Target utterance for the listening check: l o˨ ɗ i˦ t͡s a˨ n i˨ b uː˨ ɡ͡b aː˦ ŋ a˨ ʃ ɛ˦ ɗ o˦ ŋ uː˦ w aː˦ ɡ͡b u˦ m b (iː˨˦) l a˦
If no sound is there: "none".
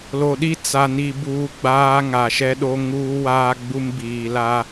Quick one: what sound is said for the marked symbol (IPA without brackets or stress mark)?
iː˨